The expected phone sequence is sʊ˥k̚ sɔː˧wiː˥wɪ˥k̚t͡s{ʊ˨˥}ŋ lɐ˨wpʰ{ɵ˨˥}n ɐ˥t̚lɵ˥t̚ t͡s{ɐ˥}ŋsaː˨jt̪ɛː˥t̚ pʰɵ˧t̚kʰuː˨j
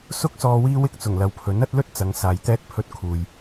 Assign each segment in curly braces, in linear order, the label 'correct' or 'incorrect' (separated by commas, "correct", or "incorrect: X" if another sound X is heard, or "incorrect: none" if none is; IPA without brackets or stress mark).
incorrect: ʊ˨˩, correct, incorrect: ɐ˨˧